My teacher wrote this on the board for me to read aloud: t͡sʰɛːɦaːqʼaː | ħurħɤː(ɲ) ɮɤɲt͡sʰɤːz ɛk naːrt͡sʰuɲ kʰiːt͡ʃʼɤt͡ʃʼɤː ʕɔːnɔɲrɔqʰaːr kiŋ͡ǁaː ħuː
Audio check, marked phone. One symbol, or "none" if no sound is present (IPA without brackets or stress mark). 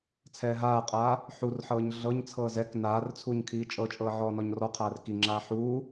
ɲ